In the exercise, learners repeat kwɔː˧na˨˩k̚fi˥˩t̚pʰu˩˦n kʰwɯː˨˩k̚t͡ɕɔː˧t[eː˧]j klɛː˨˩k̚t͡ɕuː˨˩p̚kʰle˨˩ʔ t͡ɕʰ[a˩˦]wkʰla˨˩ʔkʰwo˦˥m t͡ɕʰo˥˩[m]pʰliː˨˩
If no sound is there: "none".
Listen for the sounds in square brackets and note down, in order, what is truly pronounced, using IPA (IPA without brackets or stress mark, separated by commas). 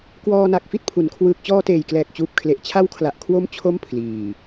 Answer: eː˨˩, a˦˥, m